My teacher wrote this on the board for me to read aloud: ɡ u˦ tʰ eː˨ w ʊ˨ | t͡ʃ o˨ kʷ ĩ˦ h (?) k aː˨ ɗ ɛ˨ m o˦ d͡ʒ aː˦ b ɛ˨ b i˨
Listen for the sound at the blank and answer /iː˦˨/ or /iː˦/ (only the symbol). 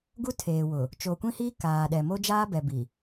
iː˦